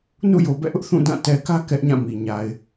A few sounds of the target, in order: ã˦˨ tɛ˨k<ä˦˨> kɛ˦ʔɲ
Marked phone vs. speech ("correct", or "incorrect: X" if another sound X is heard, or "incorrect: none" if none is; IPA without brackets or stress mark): incorrect: ä˦